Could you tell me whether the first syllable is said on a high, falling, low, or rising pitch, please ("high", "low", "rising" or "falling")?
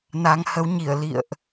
rising